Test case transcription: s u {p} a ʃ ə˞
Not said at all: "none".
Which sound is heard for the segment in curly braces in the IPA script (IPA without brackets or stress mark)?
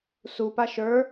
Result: p